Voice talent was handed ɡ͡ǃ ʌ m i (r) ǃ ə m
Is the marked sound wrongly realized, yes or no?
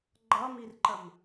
no